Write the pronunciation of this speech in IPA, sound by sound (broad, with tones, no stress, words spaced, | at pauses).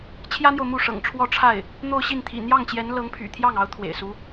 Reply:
t͡ɕʰjä˥n̪jo˨ʊ̯ mu˥˩ʂɤ̰˨˩ŋʈ͡ʂʰwɔ˥˧ ʈ͡ʂʰa˥˩ɪ̯ | n̪o˥˧ʊ̯ɕi˥˩n t̪ʰḭ˨˩n̪jɑ˥˩ŋt͡ɕjɛ˧˥n lɤ˧˥ŋpʰy̰˨˩ t̪ʰjɑ˥˩ŋɑ˧˥ʊ̯ t̪ʰwḛ˨˩ɪ̯su˧˥